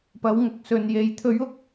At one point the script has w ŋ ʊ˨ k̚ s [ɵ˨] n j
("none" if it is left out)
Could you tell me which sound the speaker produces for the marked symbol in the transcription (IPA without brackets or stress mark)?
ɵ˨